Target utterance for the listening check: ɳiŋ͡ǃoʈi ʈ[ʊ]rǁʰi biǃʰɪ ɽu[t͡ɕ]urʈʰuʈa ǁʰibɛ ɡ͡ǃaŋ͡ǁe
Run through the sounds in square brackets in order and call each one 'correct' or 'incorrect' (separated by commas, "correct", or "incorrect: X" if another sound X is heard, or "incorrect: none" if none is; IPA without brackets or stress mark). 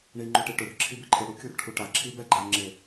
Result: correct, incorrect: kʲ